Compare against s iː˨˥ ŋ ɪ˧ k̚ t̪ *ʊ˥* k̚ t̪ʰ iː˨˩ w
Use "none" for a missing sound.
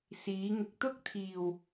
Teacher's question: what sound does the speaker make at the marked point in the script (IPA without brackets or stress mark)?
ʊ˥